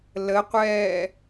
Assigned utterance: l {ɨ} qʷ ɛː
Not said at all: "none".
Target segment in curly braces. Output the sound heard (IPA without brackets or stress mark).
ə